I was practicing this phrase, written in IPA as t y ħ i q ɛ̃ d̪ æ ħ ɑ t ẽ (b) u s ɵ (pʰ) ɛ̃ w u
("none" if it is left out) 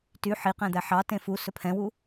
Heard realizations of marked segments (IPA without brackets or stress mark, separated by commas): f, pʰ